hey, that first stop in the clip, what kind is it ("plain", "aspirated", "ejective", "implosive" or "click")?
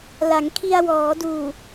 aspirated